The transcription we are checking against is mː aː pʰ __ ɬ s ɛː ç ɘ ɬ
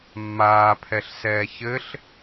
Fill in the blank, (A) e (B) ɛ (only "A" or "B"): B